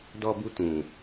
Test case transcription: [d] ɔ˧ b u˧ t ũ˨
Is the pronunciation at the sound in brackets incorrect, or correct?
correct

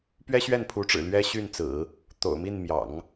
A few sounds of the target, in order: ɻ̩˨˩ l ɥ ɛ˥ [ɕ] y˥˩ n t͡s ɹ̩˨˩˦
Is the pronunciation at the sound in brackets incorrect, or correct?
correct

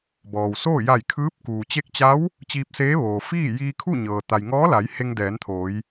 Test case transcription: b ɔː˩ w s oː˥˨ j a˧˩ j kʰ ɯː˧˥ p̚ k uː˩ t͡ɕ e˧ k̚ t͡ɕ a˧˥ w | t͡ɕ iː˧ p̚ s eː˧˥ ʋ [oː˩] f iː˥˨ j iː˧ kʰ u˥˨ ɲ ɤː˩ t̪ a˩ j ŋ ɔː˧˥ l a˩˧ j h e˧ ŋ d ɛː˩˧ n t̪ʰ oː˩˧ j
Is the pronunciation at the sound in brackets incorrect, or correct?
correct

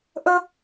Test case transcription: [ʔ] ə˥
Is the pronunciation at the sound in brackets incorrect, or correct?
correct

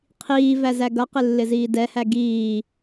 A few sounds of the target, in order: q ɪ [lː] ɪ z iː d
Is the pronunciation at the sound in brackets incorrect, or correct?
correct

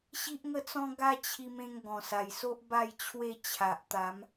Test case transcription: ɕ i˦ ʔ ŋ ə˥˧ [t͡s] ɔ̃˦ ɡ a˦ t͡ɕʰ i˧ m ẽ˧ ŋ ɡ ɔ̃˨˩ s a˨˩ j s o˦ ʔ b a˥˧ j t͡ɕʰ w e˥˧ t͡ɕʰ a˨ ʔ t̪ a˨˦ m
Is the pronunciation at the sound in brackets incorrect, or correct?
correct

